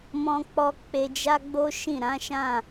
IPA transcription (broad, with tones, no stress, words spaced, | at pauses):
mɔ̃˧k͡pɔ˧ k͡pe˧d͡ʒa˦ɡ͡bo˦ ʃĩ˦˨ɾã˨˦ʃã˦˨